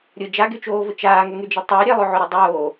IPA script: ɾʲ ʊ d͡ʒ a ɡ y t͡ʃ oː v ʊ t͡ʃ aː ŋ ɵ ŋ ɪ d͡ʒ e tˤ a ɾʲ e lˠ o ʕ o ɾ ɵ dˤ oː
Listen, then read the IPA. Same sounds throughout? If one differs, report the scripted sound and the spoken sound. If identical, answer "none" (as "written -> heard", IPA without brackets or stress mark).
ɪ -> y